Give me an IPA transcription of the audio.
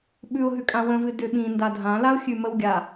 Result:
ɓ ʉ ʊ̯ ɦ ʉ kʼ ã w ə̃ v ɨ d ʏ ɓ ĩ n d a dʱ ã l a ʊ̯ xʲ ʉ m ə w ɡʲ a

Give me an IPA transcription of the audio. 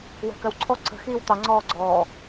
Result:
w ɛ̤ k ɜ w ǀʰ ɔ ǀ ə̤ x iː w t̪ ɑ ŋ͡ǀ ɔː ɡ͡ǀ ɔː

